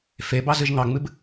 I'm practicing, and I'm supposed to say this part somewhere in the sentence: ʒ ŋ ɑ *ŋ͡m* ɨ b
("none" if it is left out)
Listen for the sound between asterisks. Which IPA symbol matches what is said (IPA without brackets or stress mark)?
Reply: ŋ͡m